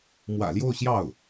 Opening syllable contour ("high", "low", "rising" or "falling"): low